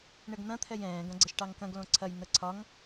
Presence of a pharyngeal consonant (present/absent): absent